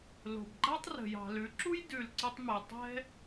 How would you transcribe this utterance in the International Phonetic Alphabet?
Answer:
lo̤˩bɡ͡ǃa˥tˤ rə̤˩jɑ̤˩lʉ˩˧ǁu˥j dʉ˩lǀʊ˧tˤmɛ˩ tˤɛ̤˥

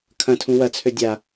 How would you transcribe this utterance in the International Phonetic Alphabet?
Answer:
kʰɐ̃tʰũ wɐt͡sʰø dʲa

